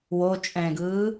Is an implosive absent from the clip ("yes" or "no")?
yes